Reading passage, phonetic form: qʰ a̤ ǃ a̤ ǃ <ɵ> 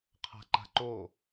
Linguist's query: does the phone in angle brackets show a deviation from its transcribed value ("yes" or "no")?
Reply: yes